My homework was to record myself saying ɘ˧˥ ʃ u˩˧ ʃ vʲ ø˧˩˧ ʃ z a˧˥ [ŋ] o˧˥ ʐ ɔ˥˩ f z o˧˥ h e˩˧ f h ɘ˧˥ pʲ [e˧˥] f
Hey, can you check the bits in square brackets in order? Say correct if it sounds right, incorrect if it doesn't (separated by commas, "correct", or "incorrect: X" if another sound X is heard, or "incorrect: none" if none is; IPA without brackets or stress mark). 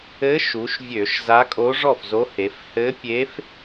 incorrect: kʼ, correct